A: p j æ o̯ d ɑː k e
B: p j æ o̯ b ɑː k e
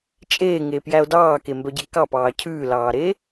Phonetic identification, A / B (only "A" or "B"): A